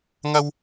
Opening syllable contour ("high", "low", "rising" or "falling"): high